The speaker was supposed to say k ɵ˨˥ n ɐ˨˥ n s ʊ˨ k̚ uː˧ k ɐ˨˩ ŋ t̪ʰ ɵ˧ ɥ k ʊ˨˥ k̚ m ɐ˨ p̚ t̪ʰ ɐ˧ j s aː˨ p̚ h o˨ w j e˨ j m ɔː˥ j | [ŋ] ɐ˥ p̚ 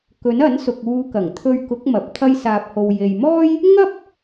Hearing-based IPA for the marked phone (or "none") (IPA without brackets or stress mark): ŋ